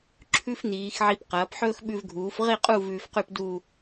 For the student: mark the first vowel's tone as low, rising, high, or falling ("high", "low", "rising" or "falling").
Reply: high